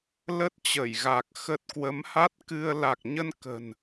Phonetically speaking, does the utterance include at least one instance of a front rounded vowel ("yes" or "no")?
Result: no